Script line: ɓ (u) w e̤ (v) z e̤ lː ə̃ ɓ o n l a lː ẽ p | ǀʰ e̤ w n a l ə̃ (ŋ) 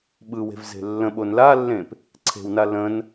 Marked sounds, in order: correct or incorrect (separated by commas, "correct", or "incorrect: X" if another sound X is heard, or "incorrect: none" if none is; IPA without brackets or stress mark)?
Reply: incorrect: ɯ, correct, incorrect: n